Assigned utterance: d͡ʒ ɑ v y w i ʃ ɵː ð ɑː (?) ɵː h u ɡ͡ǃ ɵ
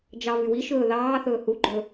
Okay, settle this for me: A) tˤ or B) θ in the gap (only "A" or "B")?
B